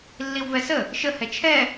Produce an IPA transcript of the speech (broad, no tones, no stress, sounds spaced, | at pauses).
lː i w v ɛ s ə | ʃ ə h ɛ t͡ʃʰ ɛ